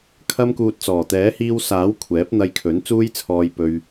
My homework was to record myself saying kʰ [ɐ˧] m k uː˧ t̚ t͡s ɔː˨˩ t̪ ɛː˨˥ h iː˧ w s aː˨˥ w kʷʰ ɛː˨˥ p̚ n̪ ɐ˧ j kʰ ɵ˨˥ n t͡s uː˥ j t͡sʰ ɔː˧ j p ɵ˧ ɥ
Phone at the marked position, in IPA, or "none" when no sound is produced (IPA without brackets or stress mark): ɐ˥